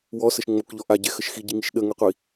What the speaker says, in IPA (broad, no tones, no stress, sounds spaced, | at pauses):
w ɔ s ə ʃ ŋ͡m o k ʎ ɔ ʔ a ɟ ɛ x ə ʃ x i ɟ i ŋ i ʃ ɗ ə ŋ ɛ qʷ i